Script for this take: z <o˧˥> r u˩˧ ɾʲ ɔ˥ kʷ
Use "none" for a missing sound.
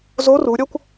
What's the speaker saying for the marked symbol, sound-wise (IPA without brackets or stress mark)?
o˧˥